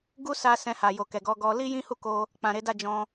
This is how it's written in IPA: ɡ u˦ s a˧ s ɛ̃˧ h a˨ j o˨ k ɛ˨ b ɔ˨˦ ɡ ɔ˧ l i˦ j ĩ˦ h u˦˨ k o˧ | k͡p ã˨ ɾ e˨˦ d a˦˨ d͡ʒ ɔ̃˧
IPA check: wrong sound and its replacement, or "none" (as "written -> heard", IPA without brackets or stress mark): b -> ɡ